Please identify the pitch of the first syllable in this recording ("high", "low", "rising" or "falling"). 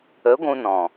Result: rising